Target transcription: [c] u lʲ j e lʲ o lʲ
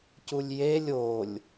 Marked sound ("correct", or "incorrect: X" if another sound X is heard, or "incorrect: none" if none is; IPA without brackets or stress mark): correct